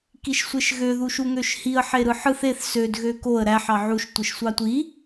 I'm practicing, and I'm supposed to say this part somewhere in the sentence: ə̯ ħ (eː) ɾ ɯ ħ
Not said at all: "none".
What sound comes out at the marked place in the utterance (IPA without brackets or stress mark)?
e